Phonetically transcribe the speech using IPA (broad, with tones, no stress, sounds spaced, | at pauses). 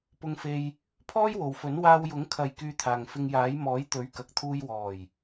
p ʊ˧ ŋ f e˧ j | pʰ ɔː˥ j w o˨ w f ɵ˨˥ n w aː˧ w j ʊ˨˥ ŋ kʰ ɐ˨ j k yː˧ t̪ʰ aː˨ ŋ f ɪ˧ ŋ j aː˨˥ j m ɔː˨˥ j t̪ ɵ˨˥ ɥ k ɐ˨ k̚ t̪ʰ uː˧ j w ɔː˨˩ j